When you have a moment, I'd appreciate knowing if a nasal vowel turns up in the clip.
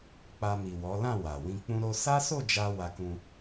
yes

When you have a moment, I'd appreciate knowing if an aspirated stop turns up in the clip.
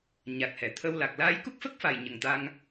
yes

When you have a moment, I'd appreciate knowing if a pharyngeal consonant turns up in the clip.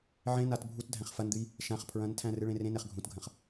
yes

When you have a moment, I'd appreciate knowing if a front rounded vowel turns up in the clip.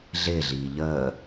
no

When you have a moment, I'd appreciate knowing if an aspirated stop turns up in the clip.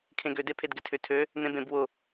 yes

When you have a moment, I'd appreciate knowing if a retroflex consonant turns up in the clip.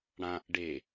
yes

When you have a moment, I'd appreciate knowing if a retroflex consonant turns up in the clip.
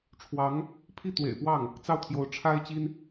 yes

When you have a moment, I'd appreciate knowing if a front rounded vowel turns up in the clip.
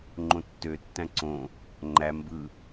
yes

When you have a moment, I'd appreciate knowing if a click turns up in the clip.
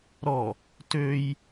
no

